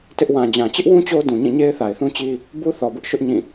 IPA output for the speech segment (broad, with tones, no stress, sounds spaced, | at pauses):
t ɪ˦ ʔ w ã˨ d͡ʑ ã˨ t͡ɕ ɪ˦ ʔ w ũ˦ t͡ɕ o˦ d ũ˨ ɲ ĩ˦˨ ɲ e˦ ɪ̯ θ a˨ ɪ̯ θ ũ˦ t͡ɕ i˦ | b u˦ θ ɔ˨ b ʊ˦ ʔ ʃ ʊ˦ ʔ ɲ ĩ˦˨